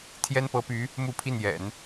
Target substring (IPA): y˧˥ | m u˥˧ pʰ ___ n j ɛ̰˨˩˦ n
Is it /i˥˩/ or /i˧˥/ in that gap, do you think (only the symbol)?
i˥˩